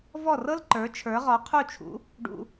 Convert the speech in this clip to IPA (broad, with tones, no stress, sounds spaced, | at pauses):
v ɔ˥˩ r ɤ˥ l ǃ ə˞˩˥ t͡ʃʰ ə˞˩˥ ʁ ɔ˩˥ qʰ u˥˩ t͡ʃʰ ṵ˩˥ | ɖ ṵ˧